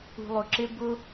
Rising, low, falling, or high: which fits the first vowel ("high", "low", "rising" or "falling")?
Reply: low